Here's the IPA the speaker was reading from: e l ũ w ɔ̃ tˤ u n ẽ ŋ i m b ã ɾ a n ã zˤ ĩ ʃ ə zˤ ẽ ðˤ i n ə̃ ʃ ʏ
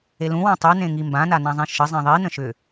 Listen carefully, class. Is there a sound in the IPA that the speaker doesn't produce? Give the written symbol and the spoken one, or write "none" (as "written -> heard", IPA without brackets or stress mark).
ɾ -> n